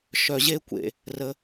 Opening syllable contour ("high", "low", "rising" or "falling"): low